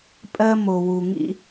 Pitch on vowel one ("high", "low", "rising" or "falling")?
high